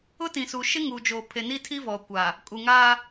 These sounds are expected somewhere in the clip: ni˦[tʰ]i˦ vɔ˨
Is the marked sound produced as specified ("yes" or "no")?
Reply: yes